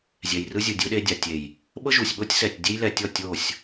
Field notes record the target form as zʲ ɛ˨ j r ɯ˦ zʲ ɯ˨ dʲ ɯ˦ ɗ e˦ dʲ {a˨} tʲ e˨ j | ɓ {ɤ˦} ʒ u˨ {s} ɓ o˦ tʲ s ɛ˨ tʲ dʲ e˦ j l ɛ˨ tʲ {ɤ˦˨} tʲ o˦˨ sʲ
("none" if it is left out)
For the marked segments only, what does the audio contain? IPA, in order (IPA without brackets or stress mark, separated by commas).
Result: a˨, ɤ˦, sʲ, ɔ˦˨